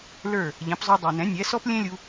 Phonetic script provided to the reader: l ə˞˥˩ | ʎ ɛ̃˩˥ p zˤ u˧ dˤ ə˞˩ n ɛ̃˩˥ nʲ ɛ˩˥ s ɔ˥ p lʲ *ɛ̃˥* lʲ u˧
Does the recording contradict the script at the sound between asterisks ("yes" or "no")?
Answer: no